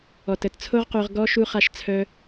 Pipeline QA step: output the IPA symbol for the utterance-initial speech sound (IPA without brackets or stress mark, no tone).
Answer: ɔ